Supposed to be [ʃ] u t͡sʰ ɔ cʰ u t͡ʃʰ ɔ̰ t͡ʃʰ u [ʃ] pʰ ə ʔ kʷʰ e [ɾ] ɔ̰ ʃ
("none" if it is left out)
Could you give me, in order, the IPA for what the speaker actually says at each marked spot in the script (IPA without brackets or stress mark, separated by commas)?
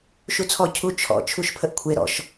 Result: ʃ, ʃ, ɾ